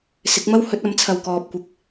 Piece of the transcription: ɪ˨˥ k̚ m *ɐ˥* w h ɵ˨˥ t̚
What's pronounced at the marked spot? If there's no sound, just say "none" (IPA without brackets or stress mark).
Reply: ɐ˥